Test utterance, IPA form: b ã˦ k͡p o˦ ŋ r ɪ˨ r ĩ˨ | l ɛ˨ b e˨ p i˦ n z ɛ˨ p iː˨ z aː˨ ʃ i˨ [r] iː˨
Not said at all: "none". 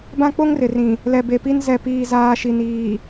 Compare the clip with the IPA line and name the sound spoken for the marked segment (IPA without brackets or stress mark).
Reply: n